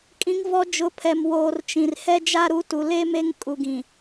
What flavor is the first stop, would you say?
ejective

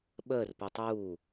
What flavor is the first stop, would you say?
implosive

